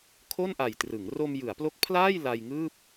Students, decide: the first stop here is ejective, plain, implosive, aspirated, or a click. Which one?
aspirated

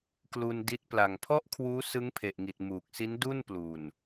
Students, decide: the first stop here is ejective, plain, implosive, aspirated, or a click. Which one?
plain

